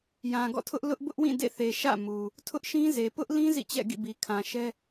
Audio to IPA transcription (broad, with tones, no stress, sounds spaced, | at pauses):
j ã˨ ɡ ɔ̰˦˨ tʰ ʊ˦ ʔ l ʊ˦ ʔ b ʊ˦ ʔ w ĩ˦˨ d ḛ˦˨ θ e˨ ʃ ä̰˦˨ m u˨ | tʰ ʊ˦ ʔ ʃ ĩ˦ z e˨ p ʊ˦ ʔ l ĩ˦ z ḭ˦˨ t͡ɕ ɛ̰˦˨ ɡ ḭ˦˨ b i˨ kʰ ã˨ ʃ ɛ˦